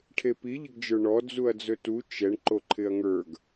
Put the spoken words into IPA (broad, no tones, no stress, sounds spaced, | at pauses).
ʈʰ e p i ʎ ɪ ɡ d͡ʒ ə˞ ɳ ɔ d͡z u ɐ̯ d͡z ɵ t u t͡ʃ ɛ ɳ ǃ o ǃʰ ɪ ɐ̯ ŋ ə˞ ɡ